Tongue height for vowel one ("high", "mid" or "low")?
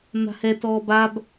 low